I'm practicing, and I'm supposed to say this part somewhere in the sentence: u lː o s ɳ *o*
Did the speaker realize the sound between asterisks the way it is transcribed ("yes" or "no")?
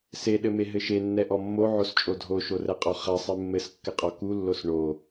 yes